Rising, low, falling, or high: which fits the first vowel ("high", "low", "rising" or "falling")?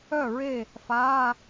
falling